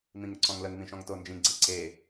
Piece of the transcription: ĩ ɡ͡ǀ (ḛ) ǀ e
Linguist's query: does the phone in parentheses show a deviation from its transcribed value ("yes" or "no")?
no